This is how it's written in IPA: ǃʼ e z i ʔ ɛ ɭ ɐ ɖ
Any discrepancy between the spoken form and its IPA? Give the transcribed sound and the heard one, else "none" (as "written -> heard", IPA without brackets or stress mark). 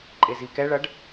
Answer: ʔ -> k